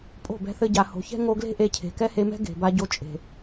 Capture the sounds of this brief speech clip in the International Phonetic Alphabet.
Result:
pʼ o̤˦˨ b ɛ̤˧ θ ɘ˧ ɟ a˨ h o̤˨ ç ɛ̤˦ ŋ o˧ ɡ l e̤˦ ʔ e˧ cʰ e̤˨ k ɛ˦ h e˧ m ɛ̤˦ ɡ e̤˨ b a˧ ɟ o˧ t͡ʃʼ e̤˨

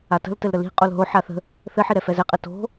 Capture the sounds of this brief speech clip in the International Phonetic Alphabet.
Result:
a t ə̤ l t ɘ l ɾ ə l i̤ qʼ o l ɦ o ħ a θ ə̤ | θ ɘ ħ i ɾ ɛ f ɛ z ɛ qʼ ɘ t o̤

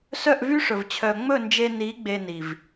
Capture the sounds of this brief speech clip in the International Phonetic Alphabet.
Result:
s œ˦˨ ʔ v y˦ ʂ ɵ˨ v t͡ɕʰ œ˨ ŋ͡m ɵ˦˨ n d͡ʒ e˧ n i˨˦ ɡ͡b e˧ n i˨ v

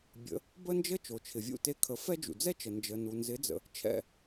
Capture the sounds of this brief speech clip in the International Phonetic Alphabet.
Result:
bʲ ə̰˩˥ | b ə˥ n d͡ʒ ə˥ t͡ʃ o˩ t͡ʃʰ ɪ˩ vʲ ṵ˥˩ t e˧ kʰ ə˩˥ f ɛ˥ d͡ʒ ṵ˩ d͡z ɛ˥ t͡ʃ ə˩ n d͡ʒ ə˩ n u˩ n z ɪ˩˥ d͡z ə̰˩ | t͡ʃʰ ɛ̰˥˩

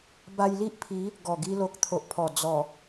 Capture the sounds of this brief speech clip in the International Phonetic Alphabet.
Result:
b a˧ j l i˦ ʔ pʰ i˨˦ | ɡ ɔ˨˩ ɡ i˧ l o˨ k̚ t̪ʰ o˨ ʔ pʰ ɔ˨˩ d͡z ɔ˨˩

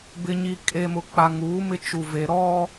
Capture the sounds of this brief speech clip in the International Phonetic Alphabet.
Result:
b ɪ˨ ɲ i˨ kʼ e˨ m ʊ˨ k͡p a˨ ŋ uː˨˦ m ɪ˦ t͡ʃ u˨ v e˨ ɾ ɔ˦

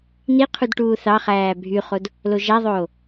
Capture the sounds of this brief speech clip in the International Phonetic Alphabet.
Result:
n i qʰ u d ʈ uː θ ɑ χ æː bʱ y χ o d | l o ʒ æ ðˤ oː

